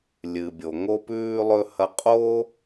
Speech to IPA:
lʲ ɨ˩ bʲ o˩ ŋ o˧ p ʉː˧ lˠ ɵ˧ h ɐ˧ qʼ oː˥

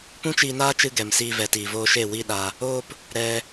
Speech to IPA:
p ũ˦ t͡ʃ iː˧ n aː˦ t͡ʃ ɨ˧ ɡ ɛ˨ m s iː˧ v ɛ˨ t iː˨ v oː˧ ʃ e˦˨ w i˦ ɗ a˧ | oː˦ p | ɾ ɛ˧

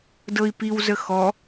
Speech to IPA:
d ɤ i̯ p i w z ə x ɔ

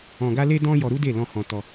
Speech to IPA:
ɔ̃˧ ɡ a˦ l e˦ d ɔ̃˦ j ɔ˧ ɾ u˦ d e˦˨ l ɔ̃˧ h ɔ̃˧ t ɔ˧

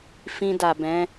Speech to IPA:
f ĩ˧ d a˨ b ɛ̃˨˦

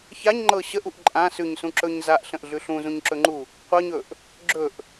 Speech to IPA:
ç a ɲ ŋ͡ǃ ɤ ɕ ə ʔ u ʔ ǃʼ ã s ʉ ɲ s ũ ǁ ɵ ɲ z a ʔ ɬ ə̃ ʔ ɮ ʉ ɬ ũ z ũ ɲ ǁ ɵ ŋ͡ǃ u | qʷ ɤ ɲ ɵ ʔ | ɡ͡ǁ ɵ ʔ

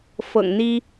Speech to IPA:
f ɤ̰˨˩ ŋ n̪ i˥

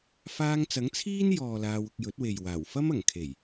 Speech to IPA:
f aː˧ ŋ t͡s ɐ˨˥ ŋ t͡sʰ iː˥ n j ɔː˨ l aː˧ w ʊ˧ k̚ j ɵ˨˥ t̚ w e˨ j w aː˨˩ w f ɐ˥ m ɐ˨˩ ŋ kʰ e˨˩ j

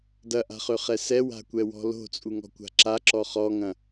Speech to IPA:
d ɐ ʔ a̤ χ ø χ ɛ s ɛ w a̤ kʷ ɛ w ɔ̤ l o̤ t͡sʼ u ŋ ɔ̤ kʷ a̤ ǁ a ǁ ɔ χ ɔ ŋ ɐ̃

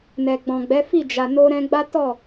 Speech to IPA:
n ɛ˨ ɡ͡b ɔ̃˨ ɡ͡b ɛ˨˦ f i˦˨ d͡ʒ a˨ n o˧ ɾ ɛ̃˧ ɡ͡b a˦ t ɔ˦˨

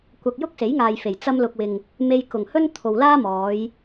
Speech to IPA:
kʷ ɐ˧ k̚ j ʊ˥ k̚ s e˨˥ j ŋ aː˨ j f e˨˩ j t͡s ɐ˧ m l ʊ˨ k̚ w ɪ˨ ŋ | m e˧ j k ʊ˨˩ ŋ h ɵ˥ n t̪ʰ o˨ w l aː˥ m ɔː˨˧ j

